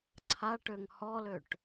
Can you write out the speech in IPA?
ǀʰ a ʈ ø ŋ h ɔ l ø ʈ

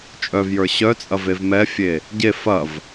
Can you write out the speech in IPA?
t͡ʃʼ œ v j ə˞ ɕ œ t͡sʼ ɐ v e v m ɛ fʲ e | ɟ e f ɐ v

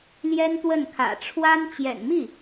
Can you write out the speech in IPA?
l j ɛ˥ n t̪ w ə˥˩ n kʰ ä̰˨˩ ʈ͡ʂʰ w a˥ n t͡ɕ j ɛ̰˨˩ n m i˥˩

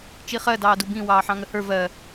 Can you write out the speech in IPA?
t͡ʃ i χ ɜ d ɑː d u b ĩ w ɑː ħ ɑ̃ ŋ ə h ə˞ v ɜ

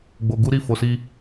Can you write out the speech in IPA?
ɡ͡b o˧ ɡ u˦ ɾ i˦˨ f o˧ s i˦

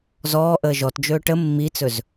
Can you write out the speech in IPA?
z ɔː ʔ əː ʒ ɔ t d͡ʒ ɵː ʈ ə mː i t͡s ɵ z

